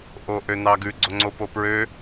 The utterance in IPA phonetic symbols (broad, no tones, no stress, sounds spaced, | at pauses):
ʔ o ʔ ø n ɑ ɡ ʉ ɡ͡ǀ o ŋ͡ǀ o p o p ɹ ø